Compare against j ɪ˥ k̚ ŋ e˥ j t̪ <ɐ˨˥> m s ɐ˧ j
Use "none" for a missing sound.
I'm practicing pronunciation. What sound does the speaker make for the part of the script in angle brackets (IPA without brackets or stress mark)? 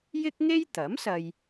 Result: ɐ˨˥